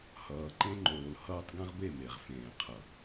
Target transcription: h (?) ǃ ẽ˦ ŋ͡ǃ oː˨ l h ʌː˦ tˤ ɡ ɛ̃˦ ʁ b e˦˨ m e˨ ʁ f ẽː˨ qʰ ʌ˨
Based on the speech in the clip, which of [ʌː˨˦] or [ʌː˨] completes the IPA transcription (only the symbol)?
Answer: ʌː˨